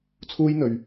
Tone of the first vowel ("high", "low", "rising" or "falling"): high